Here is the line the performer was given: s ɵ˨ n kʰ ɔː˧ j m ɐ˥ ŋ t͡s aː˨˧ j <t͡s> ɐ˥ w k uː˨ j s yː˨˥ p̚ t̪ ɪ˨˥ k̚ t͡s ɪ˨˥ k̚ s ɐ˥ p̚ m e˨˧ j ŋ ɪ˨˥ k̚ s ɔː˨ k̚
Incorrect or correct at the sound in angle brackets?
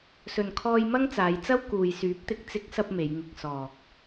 correct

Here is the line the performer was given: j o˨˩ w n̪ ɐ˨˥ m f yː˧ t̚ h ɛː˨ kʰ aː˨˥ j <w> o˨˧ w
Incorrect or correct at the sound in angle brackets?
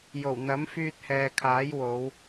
correct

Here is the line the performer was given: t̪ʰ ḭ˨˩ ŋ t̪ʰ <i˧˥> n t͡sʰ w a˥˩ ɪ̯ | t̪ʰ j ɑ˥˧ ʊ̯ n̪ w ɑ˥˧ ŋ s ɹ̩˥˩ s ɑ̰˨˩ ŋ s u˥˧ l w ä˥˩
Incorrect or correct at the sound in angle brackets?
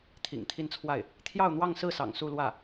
incorrect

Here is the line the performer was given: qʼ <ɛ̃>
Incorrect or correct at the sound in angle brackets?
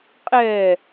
incorrect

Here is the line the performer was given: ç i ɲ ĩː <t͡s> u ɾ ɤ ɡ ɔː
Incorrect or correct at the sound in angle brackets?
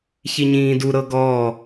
incorrect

